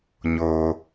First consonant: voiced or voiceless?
voiced